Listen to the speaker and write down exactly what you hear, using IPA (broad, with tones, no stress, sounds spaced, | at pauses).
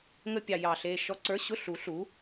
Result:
ŋ ə˥˧ pʲ ɑ˧˩ j ɑ˧˩ ɬ eː˧˩ ʃ ɔ˧˥˧ ǀ ə˞˧˥˧ ɕ ʊ˥˧ ɬ u˩˥ ɬ u˩˥